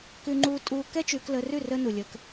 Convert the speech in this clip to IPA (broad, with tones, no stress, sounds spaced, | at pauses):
k ʉ˦ ŋ͡ǃ uː˦ tʼ uː˦ k ɛ˦ t͡ʃ ʉː˧ k l əː˧ r ʉ˦˨ r ə˦ n u˨ lʲ ə˧ k